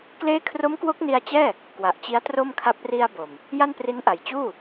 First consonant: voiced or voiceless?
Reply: voiceless